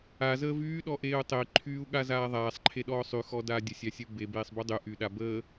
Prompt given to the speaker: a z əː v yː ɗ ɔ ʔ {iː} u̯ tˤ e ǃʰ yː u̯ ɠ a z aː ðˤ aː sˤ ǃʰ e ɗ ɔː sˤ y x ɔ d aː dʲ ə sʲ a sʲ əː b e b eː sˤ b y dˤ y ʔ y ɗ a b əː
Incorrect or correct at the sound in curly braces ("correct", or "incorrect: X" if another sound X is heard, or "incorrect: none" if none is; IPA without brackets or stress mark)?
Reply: incorrect: eː